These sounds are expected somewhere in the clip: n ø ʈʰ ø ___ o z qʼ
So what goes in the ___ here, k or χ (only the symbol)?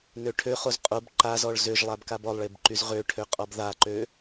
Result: χ